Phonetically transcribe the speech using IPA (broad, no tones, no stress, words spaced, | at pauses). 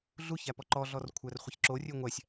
ɮuçæpɔ ǃɔɮɔr kʷʰærχʷəçǁo rʲøŋʷæsʲ